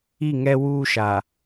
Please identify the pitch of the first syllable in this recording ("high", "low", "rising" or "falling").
falling